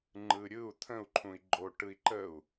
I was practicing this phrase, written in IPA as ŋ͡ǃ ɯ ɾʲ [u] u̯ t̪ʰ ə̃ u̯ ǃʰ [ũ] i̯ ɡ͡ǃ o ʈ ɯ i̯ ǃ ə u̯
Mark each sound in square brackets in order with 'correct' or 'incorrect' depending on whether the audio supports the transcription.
incorrect: ɯ, correct

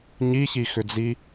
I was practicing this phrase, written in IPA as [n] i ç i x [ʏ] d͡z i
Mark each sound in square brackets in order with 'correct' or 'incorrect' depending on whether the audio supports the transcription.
incorrect: ɲ, correct

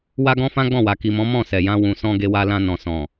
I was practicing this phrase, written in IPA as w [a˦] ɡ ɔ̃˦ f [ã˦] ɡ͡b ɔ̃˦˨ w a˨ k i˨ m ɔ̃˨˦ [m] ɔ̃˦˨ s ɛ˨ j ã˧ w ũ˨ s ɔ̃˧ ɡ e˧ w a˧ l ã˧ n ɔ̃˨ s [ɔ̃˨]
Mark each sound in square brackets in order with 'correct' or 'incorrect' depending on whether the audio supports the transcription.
correct, correct, correct, correct

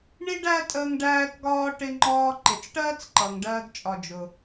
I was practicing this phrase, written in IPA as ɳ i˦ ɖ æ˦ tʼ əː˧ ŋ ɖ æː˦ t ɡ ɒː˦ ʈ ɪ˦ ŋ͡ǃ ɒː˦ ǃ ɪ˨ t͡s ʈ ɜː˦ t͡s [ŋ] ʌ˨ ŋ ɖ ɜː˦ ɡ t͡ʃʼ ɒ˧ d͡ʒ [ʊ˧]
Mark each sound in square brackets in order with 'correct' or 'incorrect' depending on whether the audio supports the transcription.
incorrect: ǃ, correct

